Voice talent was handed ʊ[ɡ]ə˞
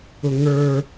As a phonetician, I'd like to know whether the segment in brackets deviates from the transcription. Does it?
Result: yes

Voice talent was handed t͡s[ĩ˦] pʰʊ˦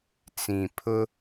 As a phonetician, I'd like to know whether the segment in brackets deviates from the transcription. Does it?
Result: yes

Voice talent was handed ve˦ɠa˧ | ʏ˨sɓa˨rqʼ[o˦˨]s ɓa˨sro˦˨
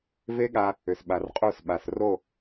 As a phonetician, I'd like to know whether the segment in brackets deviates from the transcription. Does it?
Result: no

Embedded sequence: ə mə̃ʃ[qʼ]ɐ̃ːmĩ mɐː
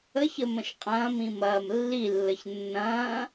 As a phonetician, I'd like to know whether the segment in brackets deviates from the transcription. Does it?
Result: no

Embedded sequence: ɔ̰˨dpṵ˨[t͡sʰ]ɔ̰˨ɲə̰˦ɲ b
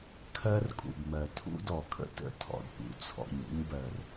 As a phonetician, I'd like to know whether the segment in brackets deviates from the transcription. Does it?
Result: no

